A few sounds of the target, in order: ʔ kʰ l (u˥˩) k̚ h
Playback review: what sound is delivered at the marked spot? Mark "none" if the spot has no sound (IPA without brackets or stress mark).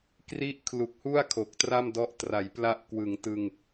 u˨˩